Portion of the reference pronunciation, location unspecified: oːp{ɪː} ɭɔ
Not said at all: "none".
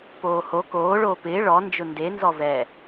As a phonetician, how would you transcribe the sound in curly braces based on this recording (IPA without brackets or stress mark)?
ɪː